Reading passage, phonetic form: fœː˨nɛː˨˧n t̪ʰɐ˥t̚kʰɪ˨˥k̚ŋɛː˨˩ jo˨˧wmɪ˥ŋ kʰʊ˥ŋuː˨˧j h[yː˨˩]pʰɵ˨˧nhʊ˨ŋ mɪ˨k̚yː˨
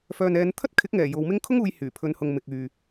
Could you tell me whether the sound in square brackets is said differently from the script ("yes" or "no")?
no